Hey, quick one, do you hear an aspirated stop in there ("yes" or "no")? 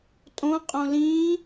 no